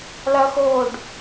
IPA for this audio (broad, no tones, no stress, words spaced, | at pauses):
lɐxoːɖ